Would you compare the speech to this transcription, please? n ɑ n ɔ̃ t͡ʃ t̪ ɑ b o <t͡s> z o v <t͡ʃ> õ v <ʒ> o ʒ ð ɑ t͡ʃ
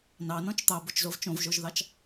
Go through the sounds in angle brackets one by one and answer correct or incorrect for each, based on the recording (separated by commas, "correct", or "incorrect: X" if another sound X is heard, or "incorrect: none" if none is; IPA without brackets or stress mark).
incorrect: t͡ʃ, correct, correct